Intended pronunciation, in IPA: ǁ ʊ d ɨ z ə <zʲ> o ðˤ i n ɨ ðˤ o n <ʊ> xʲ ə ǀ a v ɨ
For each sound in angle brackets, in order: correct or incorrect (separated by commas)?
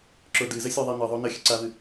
incorrect, incorrect